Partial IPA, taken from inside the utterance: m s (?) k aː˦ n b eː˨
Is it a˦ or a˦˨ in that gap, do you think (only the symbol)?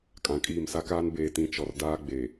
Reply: a˦